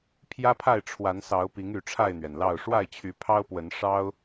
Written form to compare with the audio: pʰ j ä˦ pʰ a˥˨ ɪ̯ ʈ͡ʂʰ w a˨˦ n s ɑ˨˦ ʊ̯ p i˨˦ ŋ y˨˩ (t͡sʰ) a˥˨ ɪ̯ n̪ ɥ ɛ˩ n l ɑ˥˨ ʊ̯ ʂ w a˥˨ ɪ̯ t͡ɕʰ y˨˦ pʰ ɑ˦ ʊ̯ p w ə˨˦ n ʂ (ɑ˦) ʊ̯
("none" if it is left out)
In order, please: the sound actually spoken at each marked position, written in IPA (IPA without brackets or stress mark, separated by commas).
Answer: ʈ͡ʂʰ, ɑ˦